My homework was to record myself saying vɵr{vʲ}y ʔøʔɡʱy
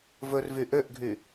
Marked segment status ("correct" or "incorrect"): incorrect